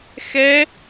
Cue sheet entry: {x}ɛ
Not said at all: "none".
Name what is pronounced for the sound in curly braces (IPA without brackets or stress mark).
x